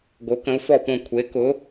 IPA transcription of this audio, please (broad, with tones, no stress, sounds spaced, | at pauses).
ɡ o˨˥ k ə̃˨˥ u̯ f ɔ˦˨ p õ˦˨ kʷʰ e˨˥ k ʊ˨˥